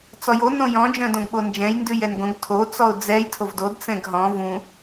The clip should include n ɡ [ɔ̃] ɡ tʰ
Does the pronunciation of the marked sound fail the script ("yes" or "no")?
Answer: yes